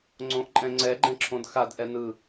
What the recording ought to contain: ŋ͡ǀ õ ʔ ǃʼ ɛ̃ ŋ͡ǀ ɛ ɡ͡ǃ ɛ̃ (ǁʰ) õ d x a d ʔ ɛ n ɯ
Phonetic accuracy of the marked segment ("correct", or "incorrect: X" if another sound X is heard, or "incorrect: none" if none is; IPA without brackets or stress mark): correct